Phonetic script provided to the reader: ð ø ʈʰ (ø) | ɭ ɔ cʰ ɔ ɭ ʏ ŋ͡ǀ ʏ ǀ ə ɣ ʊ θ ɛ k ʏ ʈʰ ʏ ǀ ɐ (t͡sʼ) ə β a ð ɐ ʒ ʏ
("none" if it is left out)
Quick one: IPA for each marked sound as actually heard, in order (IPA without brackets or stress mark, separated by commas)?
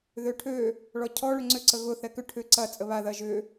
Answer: ø, t͡sʼ